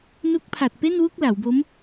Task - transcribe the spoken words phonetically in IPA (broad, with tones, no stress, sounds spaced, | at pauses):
n u˦˥ k̚ pʰ a˨˩ t̚ p e˥˩ n w u˥˩ k̚ l a˩˦ w b o˦˥ m